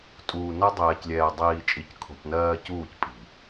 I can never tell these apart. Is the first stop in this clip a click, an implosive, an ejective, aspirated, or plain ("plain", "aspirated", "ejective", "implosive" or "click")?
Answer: ejective